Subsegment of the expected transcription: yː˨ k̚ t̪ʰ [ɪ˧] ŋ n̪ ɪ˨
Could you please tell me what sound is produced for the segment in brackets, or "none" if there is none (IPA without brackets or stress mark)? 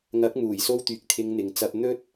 ɪ˧